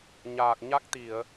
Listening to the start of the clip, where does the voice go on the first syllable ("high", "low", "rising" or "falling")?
low